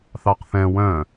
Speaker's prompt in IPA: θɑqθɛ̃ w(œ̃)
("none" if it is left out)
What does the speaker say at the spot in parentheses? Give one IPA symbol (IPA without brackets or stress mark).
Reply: œ̃